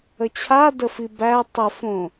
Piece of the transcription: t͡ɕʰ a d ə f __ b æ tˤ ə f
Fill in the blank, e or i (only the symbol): i